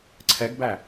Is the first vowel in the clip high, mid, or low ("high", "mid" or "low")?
mid